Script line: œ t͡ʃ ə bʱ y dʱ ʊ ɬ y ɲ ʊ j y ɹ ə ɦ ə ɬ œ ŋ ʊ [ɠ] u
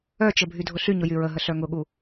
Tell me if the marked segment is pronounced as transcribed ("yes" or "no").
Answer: yes